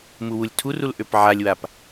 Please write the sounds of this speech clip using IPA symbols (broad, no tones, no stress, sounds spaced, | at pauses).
m u w u lʲ tʰ u r u l ʔ ø p ʕ a lʲ w a p